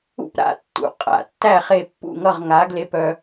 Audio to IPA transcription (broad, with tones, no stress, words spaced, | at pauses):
ṵ˦pɾa̰˦tːṵ˩˧˩ qʼa̰˧˩tːæ˥˨χe˥˨ pːṵ˥˨ŋʌ˥˨ʁŋa˨˦ ɡle˦pœ˦